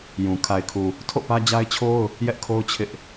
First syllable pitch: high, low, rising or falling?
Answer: low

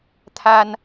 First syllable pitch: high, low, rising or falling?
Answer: high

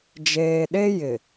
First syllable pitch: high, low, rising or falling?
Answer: low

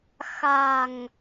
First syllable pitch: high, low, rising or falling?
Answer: low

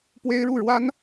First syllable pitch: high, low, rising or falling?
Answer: high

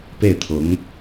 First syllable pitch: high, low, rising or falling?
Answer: falling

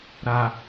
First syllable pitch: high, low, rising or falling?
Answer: low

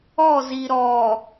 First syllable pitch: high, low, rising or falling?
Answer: falling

